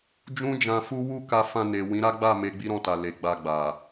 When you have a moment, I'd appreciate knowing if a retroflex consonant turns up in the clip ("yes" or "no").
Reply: no